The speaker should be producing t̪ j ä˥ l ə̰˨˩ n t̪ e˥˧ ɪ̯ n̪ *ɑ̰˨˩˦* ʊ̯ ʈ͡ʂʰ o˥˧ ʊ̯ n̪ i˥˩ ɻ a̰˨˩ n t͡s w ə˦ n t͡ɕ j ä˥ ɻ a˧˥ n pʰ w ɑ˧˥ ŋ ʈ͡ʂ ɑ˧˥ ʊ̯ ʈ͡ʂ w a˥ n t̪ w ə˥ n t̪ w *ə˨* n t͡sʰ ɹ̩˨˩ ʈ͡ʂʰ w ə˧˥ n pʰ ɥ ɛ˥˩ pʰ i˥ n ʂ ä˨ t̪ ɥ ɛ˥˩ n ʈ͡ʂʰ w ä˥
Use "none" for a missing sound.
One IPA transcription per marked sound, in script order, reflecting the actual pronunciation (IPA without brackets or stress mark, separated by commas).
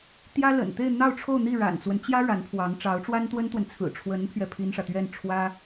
ɑ˥˧, ə˨